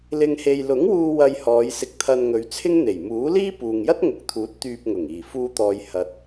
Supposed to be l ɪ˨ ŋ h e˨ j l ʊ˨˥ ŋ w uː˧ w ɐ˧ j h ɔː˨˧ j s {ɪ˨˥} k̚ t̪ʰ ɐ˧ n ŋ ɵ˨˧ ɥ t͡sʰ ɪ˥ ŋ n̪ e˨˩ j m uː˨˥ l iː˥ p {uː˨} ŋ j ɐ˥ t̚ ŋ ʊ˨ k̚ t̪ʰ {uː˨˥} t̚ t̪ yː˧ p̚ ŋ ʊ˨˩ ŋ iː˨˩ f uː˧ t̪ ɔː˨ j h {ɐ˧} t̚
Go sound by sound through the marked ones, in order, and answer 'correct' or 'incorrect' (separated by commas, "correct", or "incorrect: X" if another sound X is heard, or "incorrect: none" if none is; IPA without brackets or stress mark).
incorrect: ɪ˧, correct, correct, correct